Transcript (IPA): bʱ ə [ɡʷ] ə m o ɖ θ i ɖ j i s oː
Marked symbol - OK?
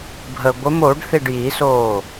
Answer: yes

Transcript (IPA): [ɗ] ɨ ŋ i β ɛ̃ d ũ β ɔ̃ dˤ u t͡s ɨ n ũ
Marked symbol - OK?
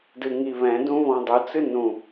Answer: no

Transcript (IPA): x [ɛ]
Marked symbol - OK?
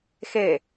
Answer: no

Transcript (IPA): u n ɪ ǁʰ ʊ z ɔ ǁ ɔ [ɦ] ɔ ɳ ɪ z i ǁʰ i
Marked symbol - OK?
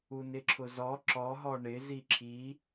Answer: yes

